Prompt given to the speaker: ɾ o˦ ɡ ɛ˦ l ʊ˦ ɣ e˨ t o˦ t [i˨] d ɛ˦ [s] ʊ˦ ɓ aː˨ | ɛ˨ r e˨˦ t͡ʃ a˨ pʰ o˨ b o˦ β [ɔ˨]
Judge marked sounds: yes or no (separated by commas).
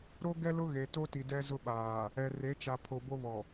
yes, no, yes